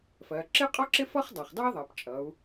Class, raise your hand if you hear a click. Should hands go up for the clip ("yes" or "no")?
yes